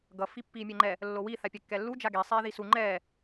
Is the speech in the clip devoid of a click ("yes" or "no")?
no